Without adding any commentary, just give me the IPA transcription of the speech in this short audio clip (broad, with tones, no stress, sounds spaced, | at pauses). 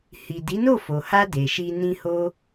h i˨ d i˨˦ n o˦˨ f o˨ h a˧ d e˨ ʃ i˧ n ĩ˧ h o˦